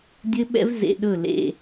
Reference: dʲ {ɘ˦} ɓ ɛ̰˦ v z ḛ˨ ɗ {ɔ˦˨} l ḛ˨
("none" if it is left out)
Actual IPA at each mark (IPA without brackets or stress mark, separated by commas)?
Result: ɘ˦, ɵ˦˨